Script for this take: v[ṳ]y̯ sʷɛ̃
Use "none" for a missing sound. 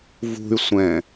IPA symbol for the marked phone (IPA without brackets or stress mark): ṳ